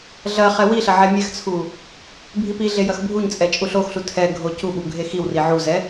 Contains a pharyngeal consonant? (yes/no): yes